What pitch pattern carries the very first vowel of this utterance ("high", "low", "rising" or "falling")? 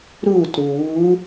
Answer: falling